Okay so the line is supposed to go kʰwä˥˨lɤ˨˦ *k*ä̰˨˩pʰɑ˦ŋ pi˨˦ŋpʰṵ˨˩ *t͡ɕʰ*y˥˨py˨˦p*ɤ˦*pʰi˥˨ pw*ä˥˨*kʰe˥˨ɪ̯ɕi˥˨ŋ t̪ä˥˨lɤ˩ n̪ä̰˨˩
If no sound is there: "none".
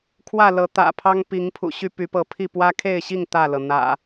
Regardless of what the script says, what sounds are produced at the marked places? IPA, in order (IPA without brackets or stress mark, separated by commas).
t̪, ɕ, ɤ˨˦, ä˦